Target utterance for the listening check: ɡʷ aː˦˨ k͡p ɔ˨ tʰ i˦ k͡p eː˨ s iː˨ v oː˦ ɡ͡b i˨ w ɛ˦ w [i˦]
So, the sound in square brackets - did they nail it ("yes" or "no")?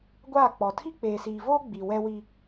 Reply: yes